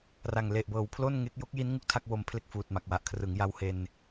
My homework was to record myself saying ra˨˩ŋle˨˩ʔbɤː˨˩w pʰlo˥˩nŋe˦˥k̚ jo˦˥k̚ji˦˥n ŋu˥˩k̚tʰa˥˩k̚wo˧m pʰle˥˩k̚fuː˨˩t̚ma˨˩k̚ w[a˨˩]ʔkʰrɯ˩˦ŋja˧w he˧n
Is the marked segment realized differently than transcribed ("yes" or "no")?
no